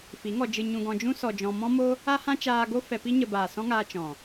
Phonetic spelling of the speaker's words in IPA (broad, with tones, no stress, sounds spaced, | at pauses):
f i˨˦ ŋ ɔ˧ d͡ʒ ɨ˧ ɲ ũ˧ ɡ ɔ̃˧ d͡ʒ ũ˦ s ɔ˧ d͡ʒ ɔ̃˧ m ɔ̃˦ m o˦ | a˦ h ã˦ t͡ʃ aː˧ ɡ o˦ f ɛ˧ p i˦ ɲ ə˧ b aː˨ s ɔ̃˦ ŋ aː˧ t͡ʃ ɔ̃˨